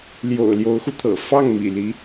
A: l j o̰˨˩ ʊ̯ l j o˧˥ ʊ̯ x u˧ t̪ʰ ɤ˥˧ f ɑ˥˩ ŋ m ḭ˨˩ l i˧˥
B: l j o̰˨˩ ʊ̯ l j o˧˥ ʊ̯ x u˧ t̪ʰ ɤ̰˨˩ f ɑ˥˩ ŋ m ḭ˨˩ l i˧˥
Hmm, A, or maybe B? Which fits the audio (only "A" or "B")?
B